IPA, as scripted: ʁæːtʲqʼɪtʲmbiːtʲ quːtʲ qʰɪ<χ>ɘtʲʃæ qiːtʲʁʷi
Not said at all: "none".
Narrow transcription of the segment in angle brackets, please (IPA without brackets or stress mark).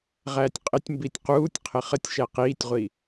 χ